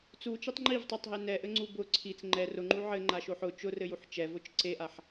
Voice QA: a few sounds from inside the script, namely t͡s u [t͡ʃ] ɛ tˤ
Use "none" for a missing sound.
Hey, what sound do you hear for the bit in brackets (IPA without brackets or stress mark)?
t͡ʃ